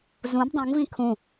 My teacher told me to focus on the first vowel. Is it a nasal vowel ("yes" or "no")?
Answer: yes